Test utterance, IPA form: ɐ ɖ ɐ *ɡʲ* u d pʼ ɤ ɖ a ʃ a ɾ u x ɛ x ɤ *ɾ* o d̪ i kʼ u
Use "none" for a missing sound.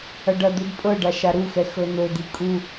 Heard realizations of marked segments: d̪, n̪

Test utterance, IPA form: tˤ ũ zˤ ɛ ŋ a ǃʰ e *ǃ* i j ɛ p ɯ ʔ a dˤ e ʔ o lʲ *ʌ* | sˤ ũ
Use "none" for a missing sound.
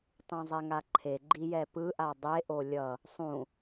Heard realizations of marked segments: ɡ͡ǃ, ʌ

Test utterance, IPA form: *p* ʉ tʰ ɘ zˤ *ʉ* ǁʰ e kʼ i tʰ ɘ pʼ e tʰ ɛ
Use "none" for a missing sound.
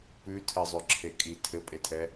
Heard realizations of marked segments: p, ʉ

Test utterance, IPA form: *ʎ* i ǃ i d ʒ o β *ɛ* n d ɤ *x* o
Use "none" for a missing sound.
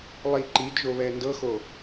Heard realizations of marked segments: lˠ, ɛ, x

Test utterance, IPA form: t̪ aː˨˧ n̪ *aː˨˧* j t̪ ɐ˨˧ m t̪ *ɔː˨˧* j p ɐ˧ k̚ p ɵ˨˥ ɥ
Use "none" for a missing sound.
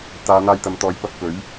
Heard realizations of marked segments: aː˧, ɔː˨˧

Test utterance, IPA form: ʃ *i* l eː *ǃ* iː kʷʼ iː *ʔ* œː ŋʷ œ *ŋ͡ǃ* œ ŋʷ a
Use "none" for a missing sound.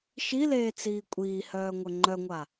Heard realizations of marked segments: i, t͡s, h, ŋ͡ǃ

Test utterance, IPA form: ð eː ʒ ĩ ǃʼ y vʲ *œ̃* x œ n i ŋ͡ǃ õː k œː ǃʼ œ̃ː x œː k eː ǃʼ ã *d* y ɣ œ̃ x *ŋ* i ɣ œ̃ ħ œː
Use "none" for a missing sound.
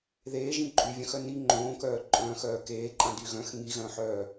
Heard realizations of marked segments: œ̃, d, ŋ

